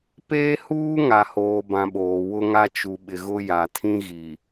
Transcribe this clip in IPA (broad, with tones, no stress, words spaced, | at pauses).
peː˦huː˦ŋa˨ hoː˨bã˨ ɓoː˨wʊ˦ŋa˦ t͡ʃu˨ɓɪ˨ ɣʊ˦ja˨ tʰĩ˦ɣi˨